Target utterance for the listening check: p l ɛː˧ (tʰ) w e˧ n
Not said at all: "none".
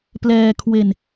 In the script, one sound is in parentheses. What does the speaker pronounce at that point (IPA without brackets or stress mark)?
kʰ